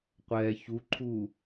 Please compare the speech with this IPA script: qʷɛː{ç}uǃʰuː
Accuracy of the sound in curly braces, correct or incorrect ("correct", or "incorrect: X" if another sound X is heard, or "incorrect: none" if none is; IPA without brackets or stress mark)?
correct